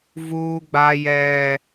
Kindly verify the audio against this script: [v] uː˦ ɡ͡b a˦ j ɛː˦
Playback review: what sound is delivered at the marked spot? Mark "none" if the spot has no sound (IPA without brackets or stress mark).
v